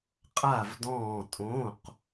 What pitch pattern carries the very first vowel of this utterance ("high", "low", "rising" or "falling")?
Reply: falling